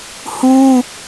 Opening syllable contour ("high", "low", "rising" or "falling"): high